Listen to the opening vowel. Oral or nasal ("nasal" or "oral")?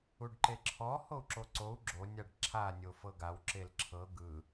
oral